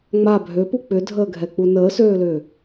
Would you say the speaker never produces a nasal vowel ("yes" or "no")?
yes